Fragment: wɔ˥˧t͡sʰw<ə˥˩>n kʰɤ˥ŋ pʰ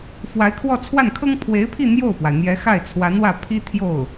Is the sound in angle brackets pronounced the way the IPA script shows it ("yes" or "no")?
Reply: no